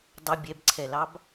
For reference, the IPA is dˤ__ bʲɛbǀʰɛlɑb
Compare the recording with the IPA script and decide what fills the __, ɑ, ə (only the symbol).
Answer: ə